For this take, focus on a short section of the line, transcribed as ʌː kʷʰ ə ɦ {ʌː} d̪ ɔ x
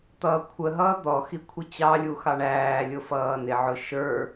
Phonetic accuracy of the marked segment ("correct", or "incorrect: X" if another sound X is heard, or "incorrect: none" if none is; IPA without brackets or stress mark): correct